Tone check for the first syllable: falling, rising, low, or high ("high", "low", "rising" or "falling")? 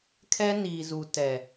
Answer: high